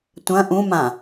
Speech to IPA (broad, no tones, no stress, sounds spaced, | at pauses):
tʷ ɐ̃ ʔ ũ m ã